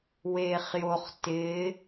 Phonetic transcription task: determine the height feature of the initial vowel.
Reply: mid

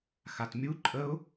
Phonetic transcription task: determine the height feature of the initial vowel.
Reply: low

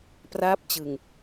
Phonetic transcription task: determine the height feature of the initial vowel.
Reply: low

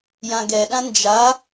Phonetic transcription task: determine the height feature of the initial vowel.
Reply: low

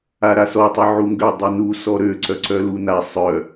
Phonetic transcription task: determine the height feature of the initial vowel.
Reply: low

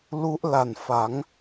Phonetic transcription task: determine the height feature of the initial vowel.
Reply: high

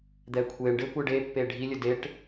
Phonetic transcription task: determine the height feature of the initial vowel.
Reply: mid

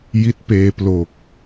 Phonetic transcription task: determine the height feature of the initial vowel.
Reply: high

